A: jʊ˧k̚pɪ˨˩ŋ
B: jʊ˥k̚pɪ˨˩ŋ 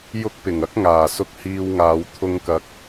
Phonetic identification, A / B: B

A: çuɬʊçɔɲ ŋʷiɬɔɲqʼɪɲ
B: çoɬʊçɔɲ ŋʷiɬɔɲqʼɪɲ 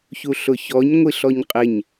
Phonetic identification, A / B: A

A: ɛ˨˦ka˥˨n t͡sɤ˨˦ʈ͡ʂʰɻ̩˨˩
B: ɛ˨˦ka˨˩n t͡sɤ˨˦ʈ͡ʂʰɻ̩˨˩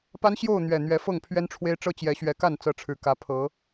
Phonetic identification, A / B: A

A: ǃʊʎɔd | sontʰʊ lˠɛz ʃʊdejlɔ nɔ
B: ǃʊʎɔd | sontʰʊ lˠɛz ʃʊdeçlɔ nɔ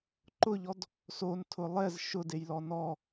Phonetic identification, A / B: A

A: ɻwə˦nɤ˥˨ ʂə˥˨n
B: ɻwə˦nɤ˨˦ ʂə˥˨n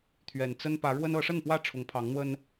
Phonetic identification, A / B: B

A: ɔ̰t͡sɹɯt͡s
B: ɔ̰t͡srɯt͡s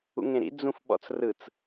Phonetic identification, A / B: B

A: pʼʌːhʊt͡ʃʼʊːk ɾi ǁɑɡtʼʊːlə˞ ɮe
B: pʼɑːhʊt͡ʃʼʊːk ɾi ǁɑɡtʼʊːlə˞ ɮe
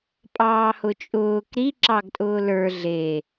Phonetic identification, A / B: B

